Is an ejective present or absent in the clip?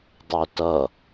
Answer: absent